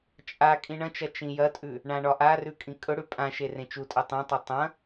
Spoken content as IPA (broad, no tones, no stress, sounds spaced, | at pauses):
t͡ʃʼ a kʼ ĩ ɳ ɐ̃ t͡ʃ ɐ t͡ʃ ĩ j ɐ tʼ ʉ | ɳ ã ɳ ɒ ʔ a r ʉ kʼ ĩ kʼ ɵ ɽ ʉ pʼ ã ʃ e r ẽ t͡ʃ u tʼ ɐ tˤ ẽ tˤ ɵ tˤ ɐ̃